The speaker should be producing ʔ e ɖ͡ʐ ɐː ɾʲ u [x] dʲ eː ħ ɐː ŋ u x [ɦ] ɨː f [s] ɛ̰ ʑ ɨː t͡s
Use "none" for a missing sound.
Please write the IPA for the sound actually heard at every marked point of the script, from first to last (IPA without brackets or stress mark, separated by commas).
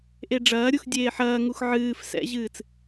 x, ʕ, s